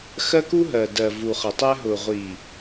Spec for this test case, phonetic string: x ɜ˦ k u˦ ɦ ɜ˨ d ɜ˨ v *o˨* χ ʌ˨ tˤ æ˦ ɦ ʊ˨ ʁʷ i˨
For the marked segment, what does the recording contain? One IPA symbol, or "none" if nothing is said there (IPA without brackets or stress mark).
u˨